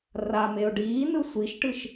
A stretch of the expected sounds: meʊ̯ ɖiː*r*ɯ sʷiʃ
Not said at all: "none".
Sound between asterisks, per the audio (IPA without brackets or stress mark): n